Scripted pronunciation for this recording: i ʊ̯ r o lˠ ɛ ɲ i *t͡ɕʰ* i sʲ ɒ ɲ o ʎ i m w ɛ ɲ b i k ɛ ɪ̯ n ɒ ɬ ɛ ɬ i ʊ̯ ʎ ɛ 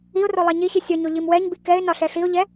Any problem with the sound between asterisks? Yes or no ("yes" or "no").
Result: yes